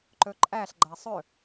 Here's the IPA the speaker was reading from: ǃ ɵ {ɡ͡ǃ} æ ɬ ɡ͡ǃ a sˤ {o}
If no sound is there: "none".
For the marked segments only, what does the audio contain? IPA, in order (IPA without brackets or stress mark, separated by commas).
ǃʼ, ɵ